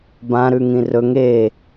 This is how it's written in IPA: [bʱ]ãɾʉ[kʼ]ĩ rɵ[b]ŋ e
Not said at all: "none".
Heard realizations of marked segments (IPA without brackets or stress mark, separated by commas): b, ŋ, none